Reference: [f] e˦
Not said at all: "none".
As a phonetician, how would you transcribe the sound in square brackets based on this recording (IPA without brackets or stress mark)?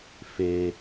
f